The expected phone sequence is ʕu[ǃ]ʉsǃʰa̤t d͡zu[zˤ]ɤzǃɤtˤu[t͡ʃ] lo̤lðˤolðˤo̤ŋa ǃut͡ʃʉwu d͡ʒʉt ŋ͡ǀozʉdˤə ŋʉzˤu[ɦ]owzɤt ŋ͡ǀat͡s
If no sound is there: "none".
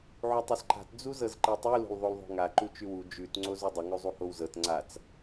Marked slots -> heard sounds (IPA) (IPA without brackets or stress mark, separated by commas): tˤ, z, none, h